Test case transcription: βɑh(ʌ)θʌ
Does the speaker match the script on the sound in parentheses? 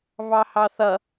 no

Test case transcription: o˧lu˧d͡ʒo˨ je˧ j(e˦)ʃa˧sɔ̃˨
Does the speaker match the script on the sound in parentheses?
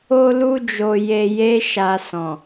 yes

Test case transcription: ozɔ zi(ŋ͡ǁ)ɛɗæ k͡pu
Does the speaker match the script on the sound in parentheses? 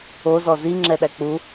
yes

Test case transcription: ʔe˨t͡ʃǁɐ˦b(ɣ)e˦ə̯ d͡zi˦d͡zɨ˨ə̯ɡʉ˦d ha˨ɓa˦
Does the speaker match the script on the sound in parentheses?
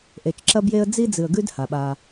no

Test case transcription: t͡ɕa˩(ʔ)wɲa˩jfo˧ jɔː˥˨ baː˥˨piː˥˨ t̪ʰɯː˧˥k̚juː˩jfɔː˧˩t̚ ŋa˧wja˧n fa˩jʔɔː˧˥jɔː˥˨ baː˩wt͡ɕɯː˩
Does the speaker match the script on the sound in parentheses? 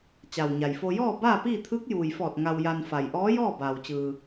no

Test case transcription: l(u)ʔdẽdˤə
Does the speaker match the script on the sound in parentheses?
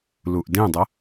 yes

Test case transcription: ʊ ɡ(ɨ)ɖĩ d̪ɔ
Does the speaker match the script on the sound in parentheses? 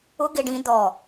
no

